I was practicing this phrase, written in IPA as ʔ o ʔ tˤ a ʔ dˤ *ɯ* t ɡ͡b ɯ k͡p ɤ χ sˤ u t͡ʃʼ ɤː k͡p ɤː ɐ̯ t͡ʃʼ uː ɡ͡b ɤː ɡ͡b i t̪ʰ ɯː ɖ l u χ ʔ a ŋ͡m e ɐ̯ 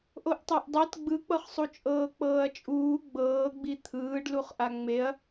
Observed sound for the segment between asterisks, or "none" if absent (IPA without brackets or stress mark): ɤ